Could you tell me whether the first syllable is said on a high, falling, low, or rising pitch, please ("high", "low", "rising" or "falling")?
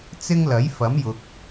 high